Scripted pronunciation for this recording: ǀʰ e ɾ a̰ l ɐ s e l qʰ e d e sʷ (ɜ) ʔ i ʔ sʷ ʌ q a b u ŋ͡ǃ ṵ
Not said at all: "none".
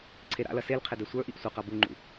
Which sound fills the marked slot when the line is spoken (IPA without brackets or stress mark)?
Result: ə˞